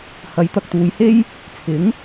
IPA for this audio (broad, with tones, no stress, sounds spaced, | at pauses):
h ɐ˨˥ j t̪ ɐ˨ k̚ t̪ uː˨˧ j h e˥ j | t͡sʰ ɪ˨˥ ŋ